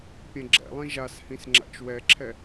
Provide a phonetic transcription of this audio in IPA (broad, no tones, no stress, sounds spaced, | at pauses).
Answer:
pʲ ɛ̃ ɡ͡ǁ ɛ̰ lˠ ĩ ʒ a s h ĩ s ŋ͡ǁ a̰ t͡ʃ w ɛ ǁʰ ɛ